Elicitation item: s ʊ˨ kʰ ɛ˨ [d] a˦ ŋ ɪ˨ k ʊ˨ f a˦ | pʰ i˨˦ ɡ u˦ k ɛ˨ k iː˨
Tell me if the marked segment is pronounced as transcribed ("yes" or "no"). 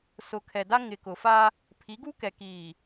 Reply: yes